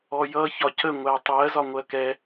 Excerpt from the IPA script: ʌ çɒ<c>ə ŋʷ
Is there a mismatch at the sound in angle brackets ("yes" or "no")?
no